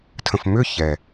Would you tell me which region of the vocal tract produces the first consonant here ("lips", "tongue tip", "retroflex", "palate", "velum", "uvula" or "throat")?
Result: tongue tip